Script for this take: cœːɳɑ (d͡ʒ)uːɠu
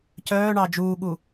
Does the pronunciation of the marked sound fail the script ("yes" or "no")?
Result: no